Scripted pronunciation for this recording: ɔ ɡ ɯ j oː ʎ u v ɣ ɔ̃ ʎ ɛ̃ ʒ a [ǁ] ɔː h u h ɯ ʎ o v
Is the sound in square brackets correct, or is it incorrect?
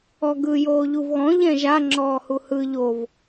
incorrect